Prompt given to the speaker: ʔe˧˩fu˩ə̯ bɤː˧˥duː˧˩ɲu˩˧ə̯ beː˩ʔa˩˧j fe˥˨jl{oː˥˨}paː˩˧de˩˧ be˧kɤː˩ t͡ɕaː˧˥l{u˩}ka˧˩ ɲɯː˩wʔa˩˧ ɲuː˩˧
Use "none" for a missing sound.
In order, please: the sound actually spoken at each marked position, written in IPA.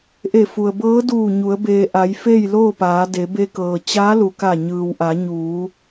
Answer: oː˥˨, u˩

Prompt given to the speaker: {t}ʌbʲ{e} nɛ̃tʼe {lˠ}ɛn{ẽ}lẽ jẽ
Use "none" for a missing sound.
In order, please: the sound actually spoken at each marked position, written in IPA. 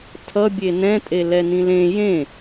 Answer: tʰ, e, l, ĩ

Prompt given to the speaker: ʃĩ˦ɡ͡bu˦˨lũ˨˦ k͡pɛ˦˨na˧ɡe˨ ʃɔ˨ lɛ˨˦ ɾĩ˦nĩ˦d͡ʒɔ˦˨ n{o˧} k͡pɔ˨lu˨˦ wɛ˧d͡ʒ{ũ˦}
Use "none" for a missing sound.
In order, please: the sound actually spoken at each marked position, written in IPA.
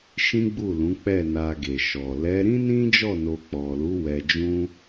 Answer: o˧, ũ˦

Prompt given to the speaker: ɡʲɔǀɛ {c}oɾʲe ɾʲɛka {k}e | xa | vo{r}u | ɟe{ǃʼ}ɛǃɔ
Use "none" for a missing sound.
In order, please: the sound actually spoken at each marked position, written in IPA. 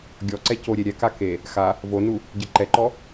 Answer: c, k, n, ǃ

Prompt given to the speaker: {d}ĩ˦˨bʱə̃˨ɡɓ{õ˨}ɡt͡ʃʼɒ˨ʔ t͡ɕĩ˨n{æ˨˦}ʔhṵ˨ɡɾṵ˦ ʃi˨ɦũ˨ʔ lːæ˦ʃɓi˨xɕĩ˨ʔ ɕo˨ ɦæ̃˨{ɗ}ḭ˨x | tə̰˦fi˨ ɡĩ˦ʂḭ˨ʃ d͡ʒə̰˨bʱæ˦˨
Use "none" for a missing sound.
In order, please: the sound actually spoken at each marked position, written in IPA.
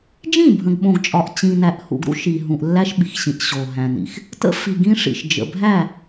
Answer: d͡ʒ, õ˨, æ˨, n

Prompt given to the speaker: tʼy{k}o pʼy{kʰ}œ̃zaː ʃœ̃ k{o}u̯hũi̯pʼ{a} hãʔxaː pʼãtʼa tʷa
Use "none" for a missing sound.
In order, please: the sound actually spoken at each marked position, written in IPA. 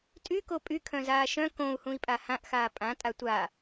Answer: k, kʰ, õ, a

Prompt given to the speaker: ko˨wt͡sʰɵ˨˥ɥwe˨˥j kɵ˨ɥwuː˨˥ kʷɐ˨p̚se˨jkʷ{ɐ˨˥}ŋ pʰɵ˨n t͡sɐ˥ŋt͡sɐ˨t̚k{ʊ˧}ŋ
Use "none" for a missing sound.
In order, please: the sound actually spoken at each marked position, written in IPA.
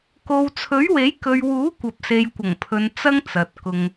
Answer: ɐ˨˩, ʊ˧

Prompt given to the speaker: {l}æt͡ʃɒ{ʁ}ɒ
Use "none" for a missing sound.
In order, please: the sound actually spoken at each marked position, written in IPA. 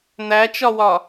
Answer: n̪, w

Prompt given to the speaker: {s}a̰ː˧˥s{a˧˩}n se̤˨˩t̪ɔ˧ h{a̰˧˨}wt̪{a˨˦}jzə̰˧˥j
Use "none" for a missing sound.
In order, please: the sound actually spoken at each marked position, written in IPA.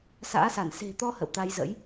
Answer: s, a˧˩, ə̰˧˨, a˧

